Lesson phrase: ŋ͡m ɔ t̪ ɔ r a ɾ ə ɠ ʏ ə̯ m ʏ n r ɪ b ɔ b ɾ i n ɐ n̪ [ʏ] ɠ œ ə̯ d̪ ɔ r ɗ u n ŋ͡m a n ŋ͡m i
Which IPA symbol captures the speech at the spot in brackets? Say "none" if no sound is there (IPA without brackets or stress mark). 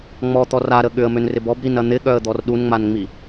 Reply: ɪ